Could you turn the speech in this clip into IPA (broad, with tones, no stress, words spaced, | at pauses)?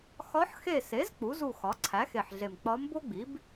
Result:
xɒ˧˥ħxe˦˨se˩˥z k͡pu˩˥zu˦˨xɒ˩˥ ǀʰæ˩˥xe˨˩ħɮe˨˩m k͡pɒ˧˥mbo˥ɡ͡bi˩˥b